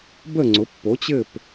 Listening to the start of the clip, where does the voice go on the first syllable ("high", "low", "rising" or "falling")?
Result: falling